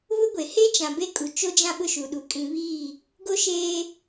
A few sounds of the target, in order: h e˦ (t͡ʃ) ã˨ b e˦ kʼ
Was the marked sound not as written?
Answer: no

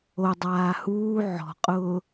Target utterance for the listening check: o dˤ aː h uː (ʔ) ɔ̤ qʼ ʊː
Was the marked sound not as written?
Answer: yes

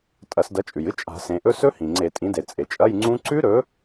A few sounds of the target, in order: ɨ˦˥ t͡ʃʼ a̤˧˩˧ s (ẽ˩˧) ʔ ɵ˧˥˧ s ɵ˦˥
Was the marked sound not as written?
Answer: no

